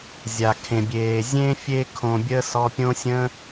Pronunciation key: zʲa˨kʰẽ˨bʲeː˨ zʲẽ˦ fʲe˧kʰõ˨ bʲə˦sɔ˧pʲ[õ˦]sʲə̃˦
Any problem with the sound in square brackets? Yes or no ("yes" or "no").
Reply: no